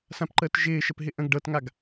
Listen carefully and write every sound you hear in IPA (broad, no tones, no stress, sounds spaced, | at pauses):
s ã p ǃ əː t ʒ ɪː ʃ ə p ɦ ɪ ʔ ə̃ ɡ ɖ ɤ t ŋ a ɡ